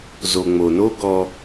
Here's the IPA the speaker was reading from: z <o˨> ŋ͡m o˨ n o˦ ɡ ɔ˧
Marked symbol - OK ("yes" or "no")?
yes